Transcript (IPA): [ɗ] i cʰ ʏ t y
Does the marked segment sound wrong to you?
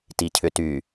yes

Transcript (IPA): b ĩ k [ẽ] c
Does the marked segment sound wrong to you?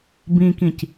yes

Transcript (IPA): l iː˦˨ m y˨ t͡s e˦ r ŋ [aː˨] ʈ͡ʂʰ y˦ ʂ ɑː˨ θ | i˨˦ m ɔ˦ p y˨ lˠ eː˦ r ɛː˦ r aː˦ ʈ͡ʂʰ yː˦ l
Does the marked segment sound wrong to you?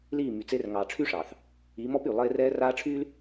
yes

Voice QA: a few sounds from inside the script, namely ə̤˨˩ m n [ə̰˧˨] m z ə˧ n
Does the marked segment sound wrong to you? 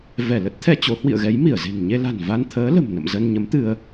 no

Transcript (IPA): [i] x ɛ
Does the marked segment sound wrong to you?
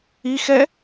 no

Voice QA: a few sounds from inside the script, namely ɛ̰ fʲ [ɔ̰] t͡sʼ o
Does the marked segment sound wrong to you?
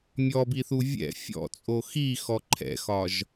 no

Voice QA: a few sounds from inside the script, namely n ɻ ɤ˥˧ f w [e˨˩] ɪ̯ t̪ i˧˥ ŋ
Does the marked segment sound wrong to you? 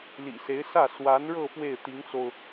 yes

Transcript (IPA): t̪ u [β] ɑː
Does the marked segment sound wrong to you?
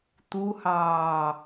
yes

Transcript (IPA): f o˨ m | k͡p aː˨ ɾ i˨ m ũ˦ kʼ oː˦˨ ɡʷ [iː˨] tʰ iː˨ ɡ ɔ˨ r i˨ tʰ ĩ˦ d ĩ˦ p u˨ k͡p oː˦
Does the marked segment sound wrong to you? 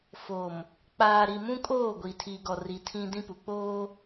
yes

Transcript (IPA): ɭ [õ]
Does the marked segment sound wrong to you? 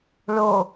yes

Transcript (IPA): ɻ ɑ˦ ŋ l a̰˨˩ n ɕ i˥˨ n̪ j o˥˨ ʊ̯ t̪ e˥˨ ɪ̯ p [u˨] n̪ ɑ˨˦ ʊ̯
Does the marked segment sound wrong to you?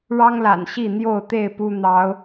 yes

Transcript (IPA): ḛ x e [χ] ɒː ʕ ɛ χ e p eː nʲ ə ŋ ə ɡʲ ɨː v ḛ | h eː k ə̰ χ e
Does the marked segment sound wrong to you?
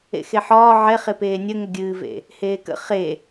yes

